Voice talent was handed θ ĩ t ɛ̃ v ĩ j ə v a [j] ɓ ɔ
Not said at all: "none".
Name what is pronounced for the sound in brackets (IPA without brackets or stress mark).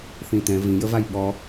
j